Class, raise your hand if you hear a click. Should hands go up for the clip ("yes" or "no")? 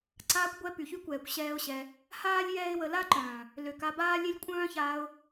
yes